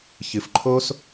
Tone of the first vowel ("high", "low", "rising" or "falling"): low